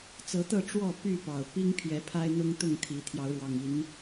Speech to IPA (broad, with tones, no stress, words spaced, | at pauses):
t͡sɤ˨˦t̪ɤ˥˨ ʈ͡ʂwɔ˥˨ py˥˨pɑ˨˩ʊ̯ pi˦ŋpʰjɛ˨˦ pʰa˦ɪ̯n̪ʊ˦ŋ t̪ʊ˥˨ŋt̪ʰi˨˦ t̪ʰjɑ˨˦ʊ̯ɻwɑ˨˩ŋi˨˦n